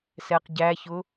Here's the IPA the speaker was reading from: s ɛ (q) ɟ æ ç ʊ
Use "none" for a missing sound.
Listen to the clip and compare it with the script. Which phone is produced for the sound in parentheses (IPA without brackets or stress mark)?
q